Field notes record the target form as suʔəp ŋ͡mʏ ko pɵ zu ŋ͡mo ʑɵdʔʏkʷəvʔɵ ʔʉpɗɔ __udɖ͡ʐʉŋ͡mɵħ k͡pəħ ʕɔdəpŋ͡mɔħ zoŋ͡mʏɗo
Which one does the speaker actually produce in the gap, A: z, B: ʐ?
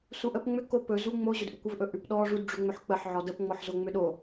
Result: B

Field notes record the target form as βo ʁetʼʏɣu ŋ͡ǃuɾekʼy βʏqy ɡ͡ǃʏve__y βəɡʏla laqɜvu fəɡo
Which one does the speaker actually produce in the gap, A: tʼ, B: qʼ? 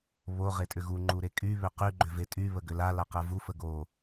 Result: A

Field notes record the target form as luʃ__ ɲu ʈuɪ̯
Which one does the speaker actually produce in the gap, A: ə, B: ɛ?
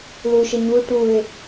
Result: A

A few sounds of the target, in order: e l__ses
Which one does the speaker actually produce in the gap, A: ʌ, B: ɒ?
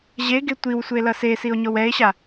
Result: A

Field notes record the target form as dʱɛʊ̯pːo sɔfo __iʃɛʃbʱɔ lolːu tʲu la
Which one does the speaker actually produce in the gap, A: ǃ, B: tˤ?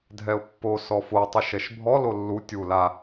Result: B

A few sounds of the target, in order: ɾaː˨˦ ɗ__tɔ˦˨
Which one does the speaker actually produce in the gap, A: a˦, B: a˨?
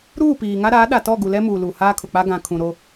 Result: B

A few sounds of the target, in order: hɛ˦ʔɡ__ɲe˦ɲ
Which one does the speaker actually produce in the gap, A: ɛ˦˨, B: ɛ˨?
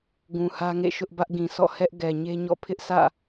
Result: B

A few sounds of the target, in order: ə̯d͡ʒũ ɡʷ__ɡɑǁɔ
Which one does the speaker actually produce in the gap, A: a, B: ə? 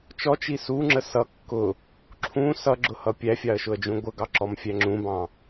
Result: B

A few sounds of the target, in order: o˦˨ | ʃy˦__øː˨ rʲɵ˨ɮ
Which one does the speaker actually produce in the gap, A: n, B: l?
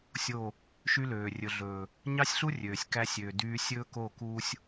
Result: B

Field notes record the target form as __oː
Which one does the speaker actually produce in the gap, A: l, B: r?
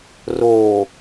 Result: B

